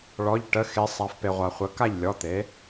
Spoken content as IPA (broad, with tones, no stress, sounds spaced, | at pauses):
ɭ ɔ˩˧˩ ʎ ʈ ə˩˧˩ x e˩˧ sˤ a˩˧ f p e˩ ʁʷ a˩ χʷ ə˩˥ k a˥˩ ʎ lʲ ɔ˩˧˩ t̪ e˩˥